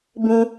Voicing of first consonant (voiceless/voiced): voiced